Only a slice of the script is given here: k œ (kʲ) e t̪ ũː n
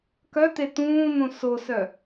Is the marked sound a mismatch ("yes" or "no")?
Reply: yes